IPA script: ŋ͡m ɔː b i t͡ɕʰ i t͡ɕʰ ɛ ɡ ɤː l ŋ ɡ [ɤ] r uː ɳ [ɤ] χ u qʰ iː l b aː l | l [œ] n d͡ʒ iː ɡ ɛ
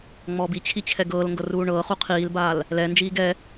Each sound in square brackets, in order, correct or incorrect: correct, incorrect: ɤː, incorrect: ɛ

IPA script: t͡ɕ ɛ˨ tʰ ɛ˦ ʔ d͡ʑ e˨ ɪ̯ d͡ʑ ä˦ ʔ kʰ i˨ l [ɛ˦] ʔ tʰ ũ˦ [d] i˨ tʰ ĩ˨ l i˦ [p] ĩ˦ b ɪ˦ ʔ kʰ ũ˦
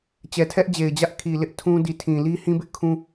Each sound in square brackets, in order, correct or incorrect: incorrect: ɪ˦, correct, incorrect: h

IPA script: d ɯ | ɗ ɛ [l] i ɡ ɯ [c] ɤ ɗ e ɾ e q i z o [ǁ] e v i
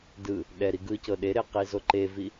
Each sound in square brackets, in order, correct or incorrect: incorrect: ɾ, correct, incorrect: ǃ

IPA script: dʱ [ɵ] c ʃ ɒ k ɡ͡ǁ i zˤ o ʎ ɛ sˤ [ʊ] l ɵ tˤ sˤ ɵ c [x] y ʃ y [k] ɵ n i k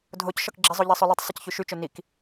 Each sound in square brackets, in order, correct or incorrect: incorrect: o, incorrect: ɵ, incorrect: ç, incorrect: t͡ʃ

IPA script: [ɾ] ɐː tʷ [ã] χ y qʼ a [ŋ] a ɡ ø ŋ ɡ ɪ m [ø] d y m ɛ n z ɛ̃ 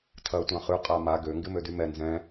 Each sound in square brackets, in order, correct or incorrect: incorrect: tʰ, correct, incorrect: m, correct

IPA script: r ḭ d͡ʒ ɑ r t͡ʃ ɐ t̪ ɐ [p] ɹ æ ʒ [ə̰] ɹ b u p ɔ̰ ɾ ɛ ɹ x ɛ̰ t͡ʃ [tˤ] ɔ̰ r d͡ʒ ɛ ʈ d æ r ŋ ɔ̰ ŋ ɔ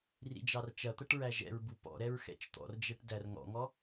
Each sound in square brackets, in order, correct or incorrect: incorrect: ʈ, incorrect: ɛ̰, incorrect: t̪

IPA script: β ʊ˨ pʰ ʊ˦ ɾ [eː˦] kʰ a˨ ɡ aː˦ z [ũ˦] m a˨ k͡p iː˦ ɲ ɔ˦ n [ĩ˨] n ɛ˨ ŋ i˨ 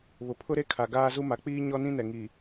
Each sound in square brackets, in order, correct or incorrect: incorrect: e˦, incorrect: u˦, incorrect: ĩ˦

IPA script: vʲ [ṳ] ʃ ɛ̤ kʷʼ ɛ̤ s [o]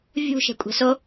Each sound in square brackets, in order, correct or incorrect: correct, correct

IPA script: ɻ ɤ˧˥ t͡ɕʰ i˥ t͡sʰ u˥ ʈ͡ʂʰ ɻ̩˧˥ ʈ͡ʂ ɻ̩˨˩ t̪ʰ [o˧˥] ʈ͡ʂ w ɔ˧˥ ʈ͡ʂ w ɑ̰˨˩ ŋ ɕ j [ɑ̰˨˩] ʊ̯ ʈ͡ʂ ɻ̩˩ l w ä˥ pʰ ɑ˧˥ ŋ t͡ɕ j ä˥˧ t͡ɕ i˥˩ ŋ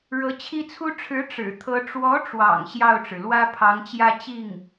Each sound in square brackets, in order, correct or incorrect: incorrect: ɤ˧˥, incorrect: ɑ˥˩

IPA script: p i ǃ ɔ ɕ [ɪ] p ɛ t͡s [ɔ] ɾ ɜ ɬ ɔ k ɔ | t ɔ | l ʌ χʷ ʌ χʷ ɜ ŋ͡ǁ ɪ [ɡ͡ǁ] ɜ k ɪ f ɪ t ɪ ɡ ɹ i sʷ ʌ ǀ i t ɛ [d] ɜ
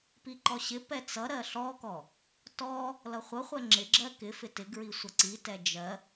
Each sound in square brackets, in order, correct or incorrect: correct, incorrect: ʌ, correct, incorrect: d͡ʒ

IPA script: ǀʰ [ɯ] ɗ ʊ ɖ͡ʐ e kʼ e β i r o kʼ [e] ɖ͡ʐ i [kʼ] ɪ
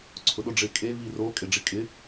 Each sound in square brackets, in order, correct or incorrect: incorrect: ʊ, correct, correct

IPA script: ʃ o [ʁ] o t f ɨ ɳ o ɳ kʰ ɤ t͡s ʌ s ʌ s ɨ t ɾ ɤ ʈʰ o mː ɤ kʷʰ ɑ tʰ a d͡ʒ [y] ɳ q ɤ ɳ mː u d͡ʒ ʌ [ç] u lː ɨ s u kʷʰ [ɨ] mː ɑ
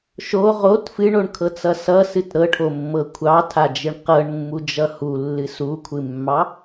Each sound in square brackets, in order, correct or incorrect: correct, incorrect: ɨ, incorrect: h, correct

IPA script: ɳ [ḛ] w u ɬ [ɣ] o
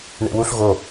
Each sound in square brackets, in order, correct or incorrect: correct, correct

